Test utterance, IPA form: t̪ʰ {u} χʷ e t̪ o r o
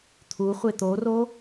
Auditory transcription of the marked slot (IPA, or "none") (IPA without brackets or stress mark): u